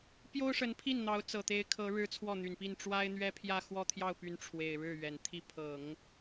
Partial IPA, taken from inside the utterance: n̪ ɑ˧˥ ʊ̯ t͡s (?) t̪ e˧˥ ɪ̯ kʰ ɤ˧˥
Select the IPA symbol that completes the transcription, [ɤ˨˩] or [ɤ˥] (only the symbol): ɤ˨˩